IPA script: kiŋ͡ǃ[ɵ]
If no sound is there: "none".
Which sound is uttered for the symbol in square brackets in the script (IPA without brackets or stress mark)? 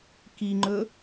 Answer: ɵ